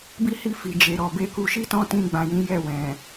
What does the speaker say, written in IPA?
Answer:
b i˦ h i˦˨ f i˨ d͡ʒ e˨ ɾ ɔ˨ b e˧ k u˧ ʃ i˦ t ɔ̃˦ t ĩ˧ ɡ͡b ã˨ j ĩ˨˦ j ɛ˦˨ w ɛ̃˨

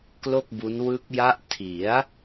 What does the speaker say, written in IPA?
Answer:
k l o˥˩ k̚ b u˦˥ n w ɯ˦˥ k̚ j a˦˥ ʔ tʰ i˩˦ a̯

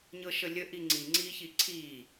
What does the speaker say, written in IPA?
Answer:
ɲ ɤ ʃ ə lʲ ə ʔ i ŋ͡ǀ i ŋ͡ǀ iː ç i ǀʰ iː

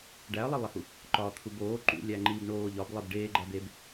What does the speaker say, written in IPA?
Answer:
ɖ æ ɐ̯ lˠ i lˠ e h u | ǃ ɒː t̪ʰ u b oː ǃ ṵ lʲ æ ŋ͡ǃ iː b ɳ oː ʎ ɒ b lˠ e b ɖ eː ɡ͡ǃ æ b e b

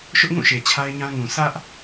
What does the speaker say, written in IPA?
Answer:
ʃ ʊ˦ ʔ ŋ ũ˦˨ ʃ e˨ t͡ɕʰ a˦ ɪ̯ ɲ ã˦ ŋ ũ˨ sʰ ä˦ ʔ

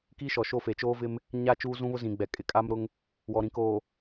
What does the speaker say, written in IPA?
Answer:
k iː˦ ʃ ɔ˨ ʃ o˦˨ f e˨ t͡ʃ oː˦ v ɪ˦ m | ɲ a˦˨ t͡ʃ uː˦ z ũ˦ β ʊ˦ z ĩ˨ ɡ͡b ɛ˨ kʼ ɪ˨ kʼ a˦ m ɾ ʊ˦ ŋ | w ɔ˨ ɾ ĩ˨ k oː˨

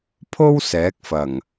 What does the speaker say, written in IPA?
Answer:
pʰ o˥ w s ɛː˨˥ k̚ f ɐ˨˩ ŋ

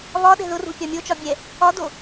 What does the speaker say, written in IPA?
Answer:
β ɒ ɗ ɛ̤ ð ʊ r ṳ pʲ ɒ mʲ o t͡ʃ ɒ bʲ ɛ | ɒ d o

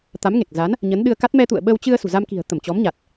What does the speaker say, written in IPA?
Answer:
t̪ a˨˦ m ŋ e˨˩ k̚ z a˨˦ n | ɲ ə˨˦ n ɗ ɨ˧ ə̯ k a˦˥ t̚ m ɛ˧ t̪ ṵ˧˨ ə̯ ɓ ə˧ w t͡ɕ ɨ˧ ə̯ s ṳ˨˩ z a˧ m k i̤˨˩ ə̯ t̪ ə˧˩ m t͡ɕ ɔ˨˦ m ɲ a˨˩ t̚

